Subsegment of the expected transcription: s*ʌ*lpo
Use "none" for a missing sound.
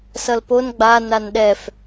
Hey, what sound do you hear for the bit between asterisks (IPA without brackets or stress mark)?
ʌ